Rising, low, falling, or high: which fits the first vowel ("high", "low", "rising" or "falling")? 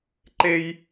high